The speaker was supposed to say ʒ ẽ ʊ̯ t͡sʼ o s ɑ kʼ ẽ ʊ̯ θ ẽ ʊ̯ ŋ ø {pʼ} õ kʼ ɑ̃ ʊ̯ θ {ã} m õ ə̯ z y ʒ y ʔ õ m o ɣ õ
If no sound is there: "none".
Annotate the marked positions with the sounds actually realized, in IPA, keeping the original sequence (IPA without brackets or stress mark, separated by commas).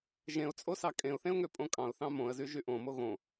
pʼ, ɑ̃